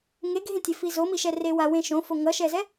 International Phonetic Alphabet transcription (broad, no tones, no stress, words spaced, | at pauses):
ŋeɡʱẽtʲefi zomiʃɛre wawẽ ʃõfo ŋʌʃɛzɛ